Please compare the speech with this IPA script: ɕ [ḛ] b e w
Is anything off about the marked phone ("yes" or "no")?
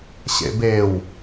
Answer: no